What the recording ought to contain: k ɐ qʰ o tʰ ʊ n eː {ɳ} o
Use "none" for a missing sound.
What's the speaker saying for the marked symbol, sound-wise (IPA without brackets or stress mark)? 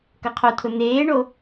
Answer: ɳ